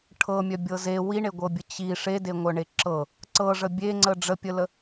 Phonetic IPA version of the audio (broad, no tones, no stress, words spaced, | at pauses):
ʈʰɤmʲœbʲɤ ze wiɳeɡʷɤbʲə t͡ɕi ʂedeŋʷœɳe ǁɤ | ǀɤʐə bʲeŋ͡ǀə ɖ͡ʐəpʲələ